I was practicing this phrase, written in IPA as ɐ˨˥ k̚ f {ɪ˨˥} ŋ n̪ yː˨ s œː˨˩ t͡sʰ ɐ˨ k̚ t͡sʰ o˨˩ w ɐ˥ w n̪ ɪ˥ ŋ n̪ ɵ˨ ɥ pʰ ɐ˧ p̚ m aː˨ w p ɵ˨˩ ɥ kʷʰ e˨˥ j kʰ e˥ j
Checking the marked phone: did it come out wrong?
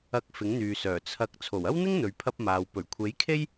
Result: no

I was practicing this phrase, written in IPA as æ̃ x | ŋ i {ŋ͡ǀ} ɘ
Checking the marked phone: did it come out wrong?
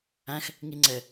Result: no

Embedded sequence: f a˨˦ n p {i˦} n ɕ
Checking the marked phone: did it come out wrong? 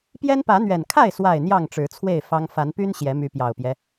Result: yes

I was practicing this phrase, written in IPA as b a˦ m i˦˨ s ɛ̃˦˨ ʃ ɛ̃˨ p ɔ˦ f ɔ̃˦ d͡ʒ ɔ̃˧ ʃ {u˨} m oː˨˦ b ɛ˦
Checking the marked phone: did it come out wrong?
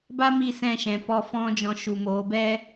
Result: no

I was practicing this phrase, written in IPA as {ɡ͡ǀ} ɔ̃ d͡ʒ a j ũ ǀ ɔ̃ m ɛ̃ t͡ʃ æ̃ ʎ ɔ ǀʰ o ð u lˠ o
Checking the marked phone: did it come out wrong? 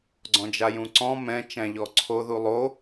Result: no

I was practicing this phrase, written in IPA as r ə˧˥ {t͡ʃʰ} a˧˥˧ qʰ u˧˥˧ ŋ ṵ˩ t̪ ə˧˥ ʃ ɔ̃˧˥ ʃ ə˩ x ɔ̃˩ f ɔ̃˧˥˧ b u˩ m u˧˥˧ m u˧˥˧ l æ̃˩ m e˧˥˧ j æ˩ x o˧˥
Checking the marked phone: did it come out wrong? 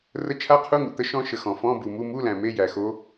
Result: no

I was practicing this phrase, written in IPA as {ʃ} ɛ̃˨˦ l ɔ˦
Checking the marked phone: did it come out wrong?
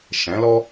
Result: no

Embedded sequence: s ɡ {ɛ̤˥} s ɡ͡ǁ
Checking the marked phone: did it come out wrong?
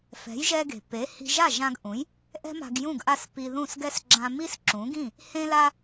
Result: yes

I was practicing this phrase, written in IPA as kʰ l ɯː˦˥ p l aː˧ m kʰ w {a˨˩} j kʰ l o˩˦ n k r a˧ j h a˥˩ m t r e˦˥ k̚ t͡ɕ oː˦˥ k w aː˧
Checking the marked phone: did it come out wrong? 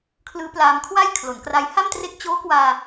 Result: yes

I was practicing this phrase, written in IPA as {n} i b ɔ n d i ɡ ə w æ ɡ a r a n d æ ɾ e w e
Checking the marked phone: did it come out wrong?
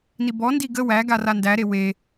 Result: no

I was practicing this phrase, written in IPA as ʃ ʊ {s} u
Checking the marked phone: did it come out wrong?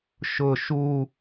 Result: yes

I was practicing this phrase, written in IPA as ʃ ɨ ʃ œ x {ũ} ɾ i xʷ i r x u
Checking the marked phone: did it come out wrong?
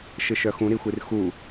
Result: no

